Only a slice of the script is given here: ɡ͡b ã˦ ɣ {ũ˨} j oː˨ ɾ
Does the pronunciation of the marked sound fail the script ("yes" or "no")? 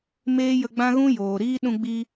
yes